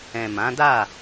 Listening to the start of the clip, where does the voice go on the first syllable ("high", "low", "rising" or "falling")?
low